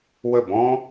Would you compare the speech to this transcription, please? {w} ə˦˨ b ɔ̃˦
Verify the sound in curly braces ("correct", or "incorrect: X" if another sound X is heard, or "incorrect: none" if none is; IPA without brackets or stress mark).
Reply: correct